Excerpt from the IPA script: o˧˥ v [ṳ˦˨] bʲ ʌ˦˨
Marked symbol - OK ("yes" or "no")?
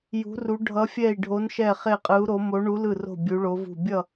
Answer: yes